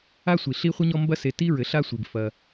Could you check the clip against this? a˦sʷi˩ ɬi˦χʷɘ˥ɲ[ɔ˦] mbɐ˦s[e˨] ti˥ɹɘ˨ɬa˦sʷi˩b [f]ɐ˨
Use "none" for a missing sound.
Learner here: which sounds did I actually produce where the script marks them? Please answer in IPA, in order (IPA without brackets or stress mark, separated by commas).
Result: ɔ˦, e˨, f